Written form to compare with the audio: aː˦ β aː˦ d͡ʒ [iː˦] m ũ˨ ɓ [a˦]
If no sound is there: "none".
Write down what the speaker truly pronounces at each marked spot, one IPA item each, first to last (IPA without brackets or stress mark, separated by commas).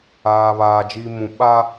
iː˦, a˦